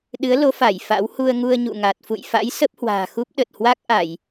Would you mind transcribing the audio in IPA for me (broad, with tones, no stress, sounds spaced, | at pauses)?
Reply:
ɗ ɨ˨˦ ə̯ l o˨˦ f a˧˩ j f a̰˧˥ w h u˧ ə̯ ŋ u˧ ə̯ ɲ ṵ˧˨ ŋ a˨˩ t̚ f ṵ˧˨ j f a̰˧˥ j s ə˦˥ p̚ h w a̤ː˨˩ x u˦˥ p̚ ɗ ə˨˩ t̚ h w a˦˥ k̚ ʔ a˧˩˨ j